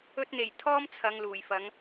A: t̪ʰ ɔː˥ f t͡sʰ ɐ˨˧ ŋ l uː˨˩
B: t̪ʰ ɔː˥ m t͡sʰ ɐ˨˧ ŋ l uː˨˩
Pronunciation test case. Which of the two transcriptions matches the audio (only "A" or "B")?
B